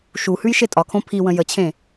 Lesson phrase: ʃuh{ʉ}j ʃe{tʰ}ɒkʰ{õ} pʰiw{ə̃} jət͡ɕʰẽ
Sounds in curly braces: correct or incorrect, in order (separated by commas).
correct, incorrect, correct, correct